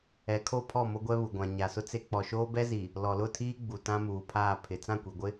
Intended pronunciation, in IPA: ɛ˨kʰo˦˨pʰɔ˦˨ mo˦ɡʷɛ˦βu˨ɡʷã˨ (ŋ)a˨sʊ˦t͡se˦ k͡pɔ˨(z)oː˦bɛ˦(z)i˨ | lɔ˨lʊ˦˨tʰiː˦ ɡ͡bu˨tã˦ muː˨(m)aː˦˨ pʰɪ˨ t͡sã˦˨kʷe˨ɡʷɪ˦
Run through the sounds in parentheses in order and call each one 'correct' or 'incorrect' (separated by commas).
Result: incorrect, incorrect, correct, incorrect